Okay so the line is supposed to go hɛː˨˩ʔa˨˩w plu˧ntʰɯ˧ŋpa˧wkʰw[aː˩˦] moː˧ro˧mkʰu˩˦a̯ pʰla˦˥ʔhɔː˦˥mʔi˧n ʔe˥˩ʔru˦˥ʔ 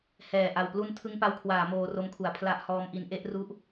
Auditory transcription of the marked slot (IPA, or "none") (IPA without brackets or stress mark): aː˩˦